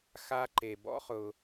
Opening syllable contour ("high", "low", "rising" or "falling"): high